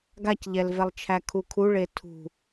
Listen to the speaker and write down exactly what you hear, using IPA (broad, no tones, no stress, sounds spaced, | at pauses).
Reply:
ɡ a c ʎ ɛ l v ɛ lˠ t͡ʃʰ æ kʰ u kʰ u ɭ e tʰ ṳ